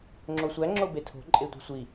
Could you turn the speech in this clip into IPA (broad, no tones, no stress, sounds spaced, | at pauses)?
ŋ͡ǁ o sʷ æ ŋ͡ǁ o b e tʰ o̤ ǃʼ e tʷ i̤ sʷ i